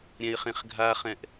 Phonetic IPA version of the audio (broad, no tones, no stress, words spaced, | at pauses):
ɾʲɛ̃ɪ̯χẽχɡʱaχɛ̃ʔ